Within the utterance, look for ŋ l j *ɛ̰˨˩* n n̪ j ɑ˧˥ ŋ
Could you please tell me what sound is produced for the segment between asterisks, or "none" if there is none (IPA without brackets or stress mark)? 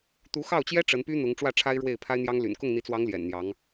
ɛ̰˨˩